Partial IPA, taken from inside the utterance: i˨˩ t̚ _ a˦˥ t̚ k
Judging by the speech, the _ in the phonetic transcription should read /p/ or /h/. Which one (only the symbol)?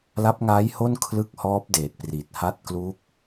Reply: h